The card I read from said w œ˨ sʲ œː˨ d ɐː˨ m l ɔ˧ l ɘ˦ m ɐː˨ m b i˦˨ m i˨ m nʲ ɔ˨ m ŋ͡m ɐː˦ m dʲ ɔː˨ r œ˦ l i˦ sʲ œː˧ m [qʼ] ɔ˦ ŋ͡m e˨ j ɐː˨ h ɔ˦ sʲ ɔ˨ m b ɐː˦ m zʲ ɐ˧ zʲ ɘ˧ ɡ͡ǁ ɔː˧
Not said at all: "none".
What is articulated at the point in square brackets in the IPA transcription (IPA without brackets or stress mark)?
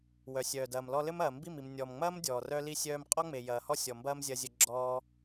qʼ